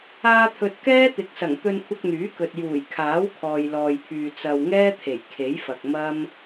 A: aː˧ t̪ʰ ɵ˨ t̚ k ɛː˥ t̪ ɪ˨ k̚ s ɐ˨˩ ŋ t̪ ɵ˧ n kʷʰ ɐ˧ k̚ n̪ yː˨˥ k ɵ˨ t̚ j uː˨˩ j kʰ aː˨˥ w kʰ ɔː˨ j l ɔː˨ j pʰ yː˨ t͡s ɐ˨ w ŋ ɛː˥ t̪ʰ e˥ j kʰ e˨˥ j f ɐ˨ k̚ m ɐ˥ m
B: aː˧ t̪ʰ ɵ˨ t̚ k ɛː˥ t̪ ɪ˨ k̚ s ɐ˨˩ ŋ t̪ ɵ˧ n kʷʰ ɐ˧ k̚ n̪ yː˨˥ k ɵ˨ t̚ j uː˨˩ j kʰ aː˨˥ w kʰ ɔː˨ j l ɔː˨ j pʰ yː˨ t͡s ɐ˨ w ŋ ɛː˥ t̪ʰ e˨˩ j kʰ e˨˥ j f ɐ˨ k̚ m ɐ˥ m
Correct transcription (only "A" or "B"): B